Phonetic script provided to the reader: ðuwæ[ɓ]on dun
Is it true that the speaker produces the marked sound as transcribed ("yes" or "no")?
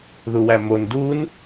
no